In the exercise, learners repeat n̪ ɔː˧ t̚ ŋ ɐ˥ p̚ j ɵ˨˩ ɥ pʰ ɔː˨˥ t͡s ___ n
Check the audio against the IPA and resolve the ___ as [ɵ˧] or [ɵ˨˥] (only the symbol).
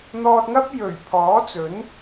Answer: ɵ˨˥